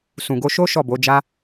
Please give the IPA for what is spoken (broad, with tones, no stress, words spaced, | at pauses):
sũ˨ɡo˧ʃo˦ ʃɔ˦˨bo˨˦d͡ʒa˦